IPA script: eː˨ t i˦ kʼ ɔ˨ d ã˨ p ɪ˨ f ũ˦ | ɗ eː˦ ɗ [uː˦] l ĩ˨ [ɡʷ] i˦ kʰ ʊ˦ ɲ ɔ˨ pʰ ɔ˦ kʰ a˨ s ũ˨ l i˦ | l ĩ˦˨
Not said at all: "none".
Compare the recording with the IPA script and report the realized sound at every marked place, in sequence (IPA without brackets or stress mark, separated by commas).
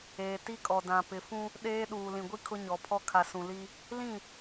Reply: uː˨, ɡʷ